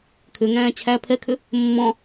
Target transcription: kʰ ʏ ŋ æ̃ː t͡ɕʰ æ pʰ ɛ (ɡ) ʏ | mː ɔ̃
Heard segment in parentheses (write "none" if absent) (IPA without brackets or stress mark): kʰ